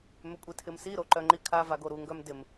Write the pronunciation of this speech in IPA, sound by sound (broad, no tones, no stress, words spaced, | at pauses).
mʏkʷʼitʰɪmsi ɾoǃœŋ͡ǃikʰa vaɡoɾu ŋɡœmdɪm